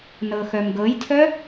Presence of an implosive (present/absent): absent